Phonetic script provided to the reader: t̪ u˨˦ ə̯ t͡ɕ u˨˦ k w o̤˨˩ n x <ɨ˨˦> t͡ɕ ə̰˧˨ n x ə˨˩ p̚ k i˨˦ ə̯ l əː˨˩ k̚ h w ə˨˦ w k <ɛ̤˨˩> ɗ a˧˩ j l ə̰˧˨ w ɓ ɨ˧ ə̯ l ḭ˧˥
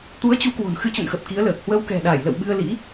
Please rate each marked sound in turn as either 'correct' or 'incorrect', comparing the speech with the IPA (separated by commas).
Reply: correct, correct